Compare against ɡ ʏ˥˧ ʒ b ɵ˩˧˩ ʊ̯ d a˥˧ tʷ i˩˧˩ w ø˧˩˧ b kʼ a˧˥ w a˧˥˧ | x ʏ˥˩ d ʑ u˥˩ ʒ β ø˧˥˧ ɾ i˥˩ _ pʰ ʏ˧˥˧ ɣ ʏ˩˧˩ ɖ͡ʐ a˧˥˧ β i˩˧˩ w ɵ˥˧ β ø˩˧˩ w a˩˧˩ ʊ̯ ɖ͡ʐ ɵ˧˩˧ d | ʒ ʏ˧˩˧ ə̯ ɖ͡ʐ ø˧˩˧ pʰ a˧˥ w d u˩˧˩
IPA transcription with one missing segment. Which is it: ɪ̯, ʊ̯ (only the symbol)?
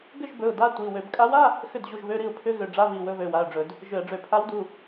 ʊ̯